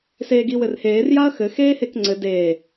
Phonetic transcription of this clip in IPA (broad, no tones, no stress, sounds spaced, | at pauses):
s eː ɡ i w ɘ r h eː r j a ɐ̯ x ɘ x eː h e k ŋ͡ǀ ɘ d e